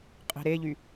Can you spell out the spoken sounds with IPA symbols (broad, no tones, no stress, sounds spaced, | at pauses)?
qʼ i̤ ɾ e ʎ y